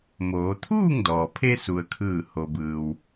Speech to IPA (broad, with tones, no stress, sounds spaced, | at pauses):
m oː˩˧ t̪ʰ uː˥˨ ŋ d ɔː˩ pʰ e˧ s u˧ ə̯ kʰ ɯː˥˨ h o˧ b ɯː˧ w